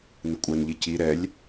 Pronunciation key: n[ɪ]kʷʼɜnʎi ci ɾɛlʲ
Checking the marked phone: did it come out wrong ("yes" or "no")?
no